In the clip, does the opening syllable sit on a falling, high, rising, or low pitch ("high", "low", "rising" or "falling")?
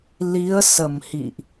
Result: rising